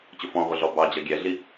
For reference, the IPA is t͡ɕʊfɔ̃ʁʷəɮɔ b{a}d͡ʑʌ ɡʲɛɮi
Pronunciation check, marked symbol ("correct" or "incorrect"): incorrect